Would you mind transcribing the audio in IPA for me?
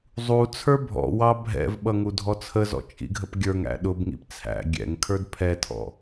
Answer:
zˤut͡sʰə˞ bʱɔ̰wɑ bʱɛ̰vɓʌ ŋudʱɔt͡sʰəzɔ̰ t͡ʃʼḭɡʱəpɡʲə˞ŋæ̰ ɗʊbŋḭp t͡sʰæ̰ ɡʲɛ̰ŋkʰə˞d pʰɛtʰɔ̰

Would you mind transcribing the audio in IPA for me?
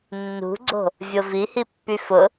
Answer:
nːṳɡ͡ǀo̤ | vʲovihi pːyfʊ

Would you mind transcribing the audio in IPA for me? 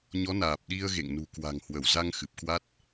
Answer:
ɲɔ˨˦naː˨˩p̚ɗi˧ə̯ɣḛ˧˨ŋ nṳ˨˩kwa̤˨˩ŋhwə˧˩w za˧ŋ xɨ˨˩p̚kwa˦˥t̚

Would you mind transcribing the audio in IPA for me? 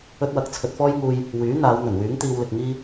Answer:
ɵ˥t̚wɐ˧k̚ t͡sʰɵ˧t̚fɔː˥jŋuː˧j | wyː˨˥ n̪aː˨˧wn̪ɵ˨˩nwyː˨˥ŋ t̪iː˧wlɪ˨k̚ŋiː˥

